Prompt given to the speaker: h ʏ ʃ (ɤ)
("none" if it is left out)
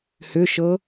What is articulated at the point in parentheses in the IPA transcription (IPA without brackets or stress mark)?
ɤ